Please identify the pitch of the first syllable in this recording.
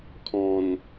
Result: low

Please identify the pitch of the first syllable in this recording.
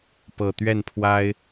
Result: low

